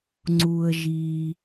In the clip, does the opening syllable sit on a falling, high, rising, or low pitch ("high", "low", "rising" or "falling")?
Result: low